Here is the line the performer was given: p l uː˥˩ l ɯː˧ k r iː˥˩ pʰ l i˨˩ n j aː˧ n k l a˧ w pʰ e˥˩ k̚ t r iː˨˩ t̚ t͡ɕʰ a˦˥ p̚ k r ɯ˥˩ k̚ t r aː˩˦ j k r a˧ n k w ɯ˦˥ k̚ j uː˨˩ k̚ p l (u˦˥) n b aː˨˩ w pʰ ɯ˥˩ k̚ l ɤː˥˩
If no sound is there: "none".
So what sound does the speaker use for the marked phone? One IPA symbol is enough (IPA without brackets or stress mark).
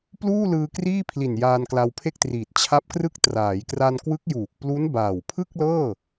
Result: u˦˥